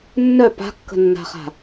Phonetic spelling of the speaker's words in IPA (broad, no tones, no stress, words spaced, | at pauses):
nːœ pa̤kːə̤nːa̤χa̤